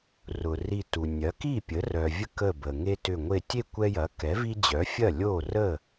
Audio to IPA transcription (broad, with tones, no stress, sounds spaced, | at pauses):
r ʊ˩ r i˧˩ t u˩ nʲ ɐ˩˥ k i˥˩ pʲ ə˩˥ r œ˩ vʲ ə˦ k ə˧˩ b ə˩ ŋ e˦ t ʏ˧˩ ŋʷ e˧˩ tʲ e˥˩ kʷ ɛ˦ j ɐ˩˥ k ɛ˩˥ v i˦ d͡ʑ œ˩˥ fʲ ɐ˥˩ lʲ o˥˩ r ə˥˩